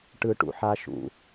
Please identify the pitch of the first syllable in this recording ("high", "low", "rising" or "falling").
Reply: high